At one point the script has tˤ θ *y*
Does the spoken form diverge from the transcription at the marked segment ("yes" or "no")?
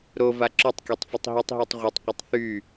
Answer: no